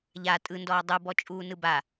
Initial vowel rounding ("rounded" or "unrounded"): unrounded